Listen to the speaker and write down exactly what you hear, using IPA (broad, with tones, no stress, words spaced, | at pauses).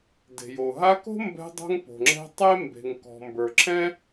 de̤˩jo˩ɦa˦ko̤˥ mbɛ̤˦dˤo̤˦ŋ po̤˨ŋ͡ǁɛ̤˦tˤe˥ mbe̤˨ŋkɔ̤˨ mbə˞˨ǁʰɛ̃˥